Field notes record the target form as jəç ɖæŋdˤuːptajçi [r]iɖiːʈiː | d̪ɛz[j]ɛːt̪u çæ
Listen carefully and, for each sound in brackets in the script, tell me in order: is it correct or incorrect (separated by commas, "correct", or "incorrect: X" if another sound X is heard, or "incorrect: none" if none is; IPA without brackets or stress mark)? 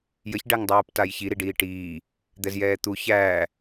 incorrect: ɾ, correct